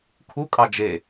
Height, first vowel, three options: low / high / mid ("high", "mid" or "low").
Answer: high